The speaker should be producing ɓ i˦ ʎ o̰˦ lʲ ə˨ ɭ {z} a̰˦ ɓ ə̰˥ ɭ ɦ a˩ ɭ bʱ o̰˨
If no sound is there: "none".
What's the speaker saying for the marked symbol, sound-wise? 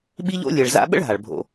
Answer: z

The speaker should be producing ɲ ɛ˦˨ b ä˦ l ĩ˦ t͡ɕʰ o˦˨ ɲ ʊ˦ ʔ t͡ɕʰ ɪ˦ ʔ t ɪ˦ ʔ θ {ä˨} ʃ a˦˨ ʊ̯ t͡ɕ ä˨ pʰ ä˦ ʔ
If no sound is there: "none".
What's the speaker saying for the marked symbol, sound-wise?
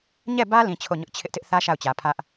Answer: ä˦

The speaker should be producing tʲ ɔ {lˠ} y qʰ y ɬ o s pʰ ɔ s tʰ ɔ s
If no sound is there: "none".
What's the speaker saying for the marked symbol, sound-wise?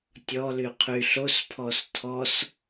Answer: l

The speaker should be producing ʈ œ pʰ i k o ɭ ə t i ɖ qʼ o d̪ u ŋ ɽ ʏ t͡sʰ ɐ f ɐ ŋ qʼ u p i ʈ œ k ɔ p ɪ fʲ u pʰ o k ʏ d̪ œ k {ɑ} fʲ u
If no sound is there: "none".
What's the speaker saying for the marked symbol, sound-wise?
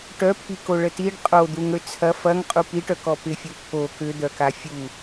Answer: a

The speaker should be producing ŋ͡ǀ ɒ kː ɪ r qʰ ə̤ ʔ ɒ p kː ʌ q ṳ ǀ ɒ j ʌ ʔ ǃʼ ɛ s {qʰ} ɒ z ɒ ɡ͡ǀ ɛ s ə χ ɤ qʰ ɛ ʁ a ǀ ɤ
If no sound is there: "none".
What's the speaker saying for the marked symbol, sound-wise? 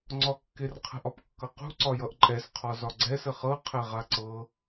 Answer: qʰ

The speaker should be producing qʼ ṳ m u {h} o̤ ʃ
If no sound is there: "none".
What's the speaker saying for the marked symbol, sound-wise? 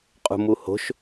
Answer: h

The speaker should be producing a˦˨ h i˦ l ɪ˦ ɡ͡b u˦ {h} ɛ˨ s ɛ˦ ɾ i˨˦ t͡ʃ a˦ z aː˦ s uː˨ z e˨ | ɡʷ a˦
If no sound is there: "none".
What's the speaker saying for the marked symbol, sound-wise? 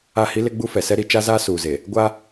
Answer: f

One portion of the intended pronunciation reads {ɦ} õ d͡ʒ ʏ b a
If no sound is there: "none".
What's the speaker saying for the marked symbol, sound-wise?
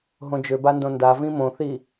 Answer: ɦ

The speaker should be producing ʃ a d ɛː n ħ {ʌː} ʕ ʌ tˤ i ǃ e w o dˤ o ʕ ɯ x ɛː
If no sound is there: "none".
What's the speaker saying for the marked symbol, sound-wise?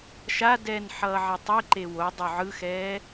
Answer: ʌː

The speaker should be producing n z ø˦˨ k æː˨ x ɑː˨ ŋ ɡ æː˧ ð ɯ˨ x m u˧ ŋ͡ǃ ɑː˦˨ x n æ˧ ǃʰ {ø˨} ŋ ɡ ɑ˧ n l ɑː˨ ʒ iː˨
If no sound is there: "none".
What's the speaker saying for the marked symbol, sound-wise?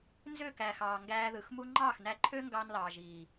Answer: ø˦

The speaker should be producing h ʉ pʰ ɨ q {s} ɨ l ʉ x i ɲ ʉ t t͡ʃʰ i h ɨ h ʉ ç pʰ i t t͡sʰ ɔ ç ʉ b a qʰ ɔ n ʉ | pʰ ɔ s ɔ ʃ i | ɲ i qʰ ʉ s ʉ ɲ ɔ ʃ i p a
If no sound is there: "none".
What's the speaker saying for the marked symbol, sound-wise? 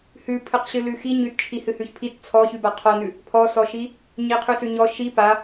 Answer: ɕ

